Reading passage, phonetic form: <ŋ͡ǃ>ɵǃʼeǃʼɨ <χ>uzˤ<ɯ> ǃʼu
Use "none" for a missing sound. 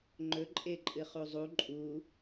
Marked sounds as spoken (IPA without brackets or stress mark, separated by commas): ŋ͡ǃ, χ, u